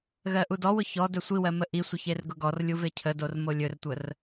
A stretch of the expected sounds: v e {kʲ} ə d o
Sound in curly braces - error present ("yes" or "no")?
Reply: yes